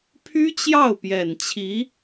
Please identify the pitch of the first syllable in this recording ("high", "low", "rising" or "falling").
high